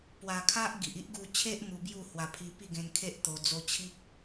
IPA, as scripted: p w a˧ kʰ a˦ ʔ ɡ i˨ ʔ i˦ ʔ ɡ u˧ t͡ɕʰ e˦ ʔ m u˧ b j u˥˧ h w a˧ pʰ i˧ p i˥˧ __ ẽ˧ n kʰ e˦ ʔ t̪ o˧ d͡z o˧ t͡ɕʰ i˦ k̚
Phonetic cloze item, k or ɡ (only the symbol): ɡ